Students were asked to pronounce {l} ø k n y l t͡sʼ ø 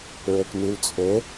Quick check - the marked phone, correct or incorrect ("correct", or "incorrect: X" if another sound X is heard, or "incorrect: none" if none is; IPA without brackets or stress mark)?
incorrect: ɹ